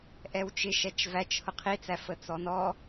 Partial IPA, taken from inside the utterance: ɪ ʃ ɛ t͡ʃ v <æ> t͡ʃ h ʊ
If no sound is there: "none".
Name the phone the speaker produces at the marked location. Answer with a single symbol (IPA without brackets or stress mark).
æ